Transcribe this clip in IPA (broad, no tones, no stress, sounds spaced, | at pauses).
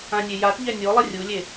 ã nʲ e j a t ʎ ɛ nʲ o lˠ ɪ rʲ u lʲ e